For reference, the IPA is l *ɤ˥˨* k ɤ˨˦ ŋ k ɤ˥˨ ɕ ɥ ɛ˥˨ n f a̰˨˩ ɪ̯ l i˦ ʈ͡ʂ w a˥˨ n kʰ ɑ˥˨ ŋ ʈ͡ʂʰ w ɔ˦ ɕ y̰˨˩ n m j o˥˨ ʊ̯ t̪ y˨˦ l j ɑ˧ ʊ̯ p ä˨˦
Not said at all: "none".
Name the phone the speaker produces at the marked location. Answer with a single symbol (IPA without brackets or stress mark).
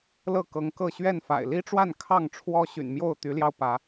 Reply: ɤ˥˨